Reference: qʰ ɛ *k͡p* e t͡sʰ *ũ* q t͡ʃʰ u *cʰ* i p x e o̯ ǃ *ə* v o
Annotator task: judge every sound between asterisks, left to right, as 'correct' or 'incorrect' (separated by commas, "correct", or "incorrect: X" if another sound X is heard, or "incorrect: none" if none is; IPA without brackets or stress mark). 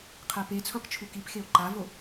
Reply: incorrect: p, correct, incorrect: k, incorrect: a